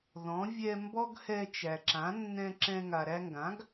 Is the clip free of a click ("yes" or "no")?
no